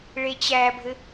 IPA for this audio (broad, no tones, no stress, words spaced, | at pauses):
ɭet͡ɕæbʱɘ